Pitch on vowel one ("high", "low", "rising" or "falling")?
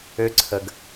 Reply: rising